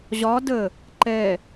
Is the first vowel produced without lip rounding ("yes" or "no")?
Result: no